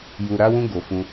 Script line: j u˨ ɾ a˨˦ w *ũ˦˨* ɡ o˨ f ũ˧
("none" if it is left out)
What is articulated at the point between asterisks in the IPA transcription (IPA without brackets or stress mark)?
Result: ũ˧